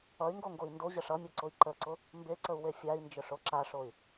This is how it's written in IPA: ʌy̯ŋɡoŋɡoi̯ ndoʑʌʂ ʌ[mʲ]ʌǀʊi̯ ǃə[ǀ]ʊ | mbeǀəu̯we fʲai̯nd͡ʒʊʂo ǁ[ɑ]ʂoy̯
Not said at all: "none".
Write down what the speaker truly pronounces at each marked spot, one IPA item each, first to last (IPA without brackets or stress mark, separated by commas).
mʲ, ǀ, a